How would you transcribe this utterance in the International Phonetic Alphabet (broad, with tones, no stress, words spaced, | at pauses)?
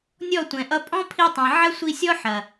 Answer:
nʲɔ˦˨ tʷɛ̃˨ʔʌ˧ pʼɔ̃˦pʰi˧tˤẽ˨ ʕɐ˦sʷi˧sʲɔ˦ ħɐ˨